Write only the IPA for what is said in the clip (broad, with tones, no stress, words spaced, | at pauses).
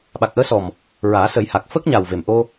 ɓa˨˩k̚ʔəː˧˥sɔ˨˩m | ɹaː˨˩˦sə˨˩˦jha˨˩k̚ fəː˦˥k̚ɲa˨˩wve˨˩m ʔo˧